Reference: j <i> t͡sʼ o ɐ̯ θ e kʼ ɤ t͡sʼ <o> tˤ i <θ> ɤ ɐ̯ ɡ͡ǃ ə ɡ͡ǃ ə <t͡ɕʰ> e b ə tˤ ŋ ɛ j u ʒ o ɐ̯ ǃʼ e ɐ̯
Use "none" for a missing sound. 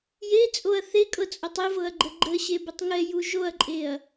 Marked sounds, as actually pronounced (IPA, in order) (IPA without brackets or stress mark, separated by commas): e, o, v, ɕ